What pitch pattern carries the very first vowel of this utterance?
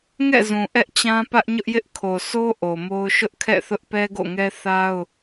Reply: falling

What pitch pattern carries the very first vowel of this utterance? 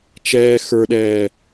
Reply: low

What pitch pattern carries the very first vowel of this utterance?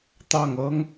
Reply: falling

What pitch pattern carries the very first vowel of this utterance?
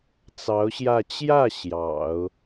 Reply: rising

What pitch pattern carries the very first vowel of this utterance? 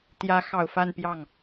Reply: rising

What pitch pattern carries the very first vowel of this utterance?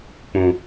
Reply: low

